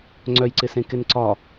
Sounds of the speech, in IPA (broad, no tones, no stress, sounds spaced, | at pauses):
ŋ͡ǀ œ j ǀ ɪ s ẽ k ɪ n ǀ ɒ